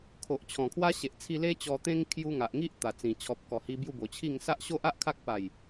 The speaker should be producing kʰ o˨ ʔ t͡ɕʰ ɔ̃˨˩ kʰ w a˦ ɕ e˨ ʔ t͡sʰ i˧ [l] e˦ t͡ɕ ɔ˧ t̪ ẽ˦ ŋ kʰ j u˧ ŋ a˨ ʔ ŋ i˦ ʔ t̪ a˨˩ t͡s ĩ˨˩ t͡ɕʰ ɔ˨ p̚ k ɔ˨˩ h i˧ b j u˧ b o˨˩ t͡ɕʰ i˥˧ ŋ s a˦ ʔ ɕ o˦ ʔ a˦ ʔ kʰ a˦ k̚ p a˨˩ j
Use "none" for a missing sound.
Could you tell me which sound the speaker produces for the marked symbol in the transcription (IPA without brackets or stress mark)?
l